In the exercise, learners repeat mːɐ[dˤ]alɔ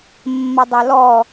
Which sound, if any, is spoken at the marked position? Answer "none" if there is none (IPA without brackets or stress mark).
dˤ